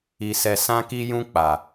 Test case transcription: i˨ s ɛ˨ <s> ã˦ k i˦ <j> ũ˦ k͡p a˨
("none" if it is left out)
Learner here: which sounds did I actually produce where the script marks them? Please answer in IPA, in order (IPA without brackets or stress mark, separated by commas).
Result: s, j